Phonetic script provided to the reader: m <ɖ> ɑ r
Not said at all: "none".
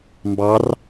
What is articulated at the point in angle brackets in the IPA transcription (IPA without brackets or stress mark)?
b